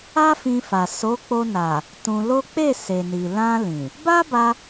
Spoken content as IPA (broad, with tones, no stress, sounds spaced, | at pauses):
a˦ f ĩ˧ f a˨ s o˨˦ k͡p o˧ n a˨ | t ũ˧ l o˦ k͡p e˦˨ s e˨ n i˨ l ã˧ l ĩ˨ | b a˦ b a˧